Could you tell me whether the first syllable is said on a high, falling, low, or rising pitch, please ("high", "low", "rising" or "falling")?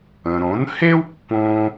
low